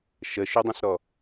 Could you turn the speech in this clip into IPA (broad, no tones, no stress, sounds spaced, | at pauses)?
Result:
ʃ ə ʃ ʉ dˤ ə̃ ɬ ɾ ɔ